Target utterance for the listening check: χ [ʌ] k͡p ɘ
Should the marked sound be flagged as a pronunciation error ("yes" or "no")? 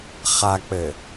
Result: yes